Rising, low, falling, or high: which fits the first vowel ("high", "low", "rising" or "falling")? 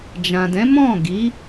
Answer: low